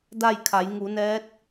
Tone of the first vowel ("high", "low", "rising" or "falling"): falling